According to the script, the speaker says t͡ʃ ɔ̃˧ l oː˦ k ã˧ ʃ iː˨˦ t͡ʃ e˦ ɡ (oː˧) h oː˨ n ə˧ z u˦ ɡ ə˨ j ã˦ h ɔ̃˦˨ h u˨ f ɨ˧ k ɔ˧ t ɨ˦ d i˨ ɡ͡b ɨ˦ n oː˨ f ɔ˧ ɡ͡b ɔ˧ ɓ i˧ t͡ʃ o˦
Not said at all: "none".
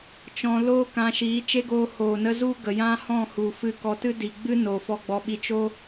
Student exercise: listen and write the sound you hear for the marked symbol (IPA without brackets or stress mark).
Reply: oː˧